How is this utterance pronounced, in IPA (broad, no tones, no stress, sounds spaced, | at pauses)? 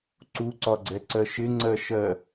ǀ u ǀ ɒ ɡ͡ǀ ɛ ǀ ɜ ʃ ɪ ŋ͡ǀ ɜ ʃ ɜ